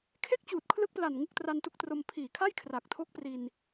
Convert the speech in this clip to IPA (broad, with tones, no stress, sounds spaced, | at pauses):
kʰ e˥˩ k̚ t͡ɕ uː˨˩ t̚ kʰ l ɯ˦˥ k̚ p l a˨˩ n ŋ ɯ˦˥ k̚ t r a˧ n t u˦˥ k̚ t r o˧ m pʰ iː˨˩ kʰ a˥˩ j kʰ r aː˨˩ k̚ tʰ o˦˥ k̚ p r i˧ n